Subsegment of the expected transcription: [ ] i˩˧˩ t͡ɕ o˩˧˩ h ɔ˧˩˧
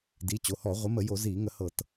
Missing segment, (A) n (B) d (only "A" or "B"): B